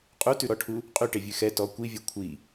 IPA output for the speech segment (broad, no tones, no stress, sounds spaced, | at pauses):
qʼ u t ʉ ɾ ɔ ʈʰ u | qʼ y ʈ e vʲ ʉ x ɛ t ɔ kʷ i vʲ ɛ kʷʰ i